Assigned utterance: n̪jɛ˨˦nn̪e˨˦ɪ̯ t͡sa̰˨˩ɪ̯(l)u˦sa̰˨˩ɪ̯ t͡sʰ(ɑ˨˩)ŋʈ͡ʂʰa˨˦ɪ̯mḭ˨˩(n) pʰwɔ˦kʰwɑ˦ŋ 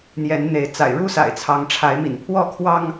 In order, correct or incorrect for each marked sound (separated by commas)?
incorrect, incorrect, correct